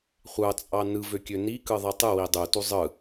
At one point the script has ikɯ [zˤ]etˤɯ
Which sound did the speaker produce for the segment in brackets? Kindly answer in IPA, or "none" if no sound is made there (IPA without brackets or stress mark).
ðˤ